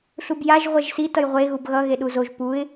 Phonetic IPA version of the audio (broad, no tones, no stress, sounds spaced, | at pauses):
ɬ u b j a ʒ ʁʷ ɛ ʒ s i t ʌ j ʁʷ e ɣ u b ɣ ʌ ɣ e ɗ u z o ʒ p u ɪ̯